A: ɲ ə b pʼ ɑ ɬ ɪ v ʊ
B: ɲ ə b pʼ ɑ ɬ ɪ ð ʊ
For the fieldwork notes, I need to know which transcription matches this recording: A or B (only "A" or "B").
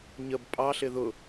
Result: B